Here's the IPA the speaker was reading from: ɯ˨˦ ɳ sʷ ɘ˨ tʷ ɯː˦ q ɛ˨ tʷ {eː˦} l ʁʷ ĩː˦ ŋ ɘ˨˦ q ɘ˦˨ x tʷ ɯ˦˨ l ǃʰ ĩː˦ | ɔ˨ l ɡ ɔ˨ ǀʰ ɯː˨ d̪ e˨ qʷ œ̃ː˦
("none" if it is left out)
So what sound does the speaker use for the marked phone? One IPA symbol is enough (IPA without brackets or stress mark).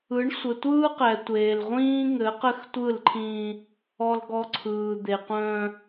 eː˨